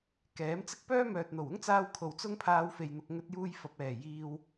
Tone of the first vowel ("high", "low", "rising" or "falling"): rising